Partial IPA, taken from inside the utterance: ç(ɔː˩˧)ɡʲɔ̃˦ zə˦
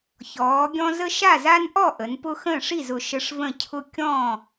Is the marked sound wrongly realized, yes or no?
no